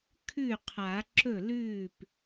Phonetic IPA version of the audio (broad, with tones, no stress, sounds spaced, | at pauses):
kʰ ʉ˥˩ qʰ a˨˩˦ ǁ ɵ˥˩ l ʉː˥˩ p